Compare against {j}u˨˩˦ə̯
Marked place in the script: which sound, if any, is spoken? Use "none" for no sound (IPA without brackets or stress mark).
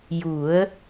j